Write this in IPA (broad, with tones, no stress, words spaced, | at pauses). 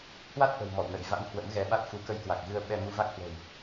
hwa˦˥t̚ʔə̤˨˩w mɔ̰˧˨wnə̰˧˨j va̰˧˥n hwə̰˧˥mɣɛ˨˦ɓa˦˥t̚ fu˨˦kə˧jkwa˨˩k̚ɣɨ˧ə̯ ɓɛ˧ mu˧va˦˥k̚hwə̤˨˩w